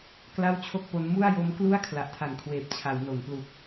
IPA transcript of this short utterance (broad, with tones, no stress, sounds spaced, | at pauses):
k l a˥˩ w t͡ɕʰ o˥˩ k̚ p o˦˥ n m u˥˩ a̯ j o˦˥ m k l u˥˩ a̯ kʰ l a˨˩ ʔ tʰ a˨˩ n kʰ w eː˨˩ p̚ t͡ɕʰ a˩˦ w n o˩˦ n p l u˨˩ k̚